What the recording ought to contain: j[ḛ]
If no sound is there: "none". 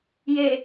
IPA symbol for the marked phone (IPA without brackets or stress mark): e